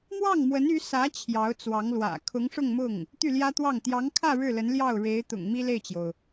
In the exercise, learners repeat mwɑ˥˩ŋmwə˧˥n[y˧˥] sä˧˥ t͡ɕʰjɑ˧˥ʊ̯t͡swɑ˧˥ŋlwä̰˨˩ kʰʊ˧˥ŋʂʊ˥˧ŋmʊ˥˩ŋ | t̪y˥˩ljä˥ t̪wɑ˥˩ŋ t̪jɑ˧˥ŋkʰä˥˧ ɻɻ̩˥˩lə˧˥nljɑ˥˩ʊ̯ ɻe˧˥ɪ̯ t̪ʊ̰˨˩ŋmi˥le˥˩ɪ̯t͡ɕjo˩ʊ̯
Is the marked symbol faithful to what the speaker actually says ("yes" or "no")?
yes